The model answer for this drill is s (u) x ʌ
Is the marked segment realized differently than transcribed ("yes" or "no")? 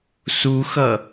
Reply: no